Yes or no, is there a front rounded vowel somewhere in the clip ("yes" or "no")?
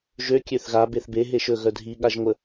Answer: yes